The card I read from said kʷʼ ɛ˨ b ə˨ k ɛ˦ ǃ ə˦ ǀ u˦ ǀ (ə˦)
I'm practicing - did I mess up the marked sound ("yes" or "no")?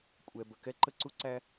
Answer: yes